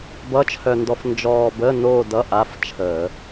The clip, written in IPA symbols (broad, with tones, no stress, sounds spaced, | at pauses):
b ʌ˧˥˧ t͡ʃʰ œ˧ n d ɔ˧ f n d͡ʒ ɔː˧ b ə˧˥˧ n oː˥˧ d ʌ˧˥˧ ʔ a˧˥˧ f t͡ʃʰ əː˧˩˧